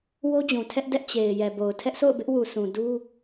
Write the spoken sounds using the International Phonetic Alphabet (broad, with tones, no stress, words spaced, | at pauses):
wo˦d͡ʑũ˨tʰɛ˦ʔ dɛ˦ʔ t͡ɕe˨ɪ̯ jɛ˨bo˨ʊ̯ tʰɛ˦ʔsʰo̰˦˨ʊ̯ bɪ˦ʔwu˨ sʰũ˨ du˦